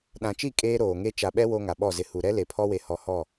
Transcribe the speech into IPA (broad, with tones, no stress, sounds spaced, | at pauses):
ɗ ã˨ t͡ʃ i˦˨ kʼ eː˦ ɾ oː˨ ŋ e˦ t͡ʃ a˨ ɓ ɛ˦ w o˦ ŋ a˨ ɓ ɔ˦˨ z ɪ˨ h u˨ ɾ ɛ˦ l e˨ pʰ ɔ˦ w e˨ h ɔ˨ h ɔ˦˨